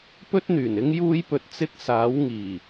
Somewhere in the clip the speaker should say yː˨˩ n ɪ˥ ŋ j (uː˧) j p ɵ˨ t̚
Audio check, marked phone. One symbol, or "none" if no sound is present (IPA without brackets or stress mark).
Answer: uː˧